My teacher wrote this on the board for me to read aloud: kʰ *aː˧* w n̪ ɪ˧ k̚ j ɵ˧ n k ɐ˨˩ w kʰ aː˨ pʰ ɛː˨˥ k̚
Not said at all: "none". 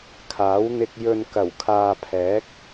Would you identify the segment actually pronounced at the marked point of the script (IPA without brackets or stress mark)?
aː˨˥